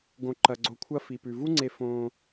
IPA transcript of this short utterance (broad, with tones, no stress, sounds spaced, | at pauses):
ɡ õ˨ ǃ ɐ˨ ɡ͡ǀ o˨ kʷʰ ɐ˧ f i˨ p ʉ˨ v u˦ ŋ͡ǀ e˧ f õ˧